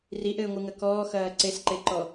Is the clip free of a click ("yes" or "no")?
no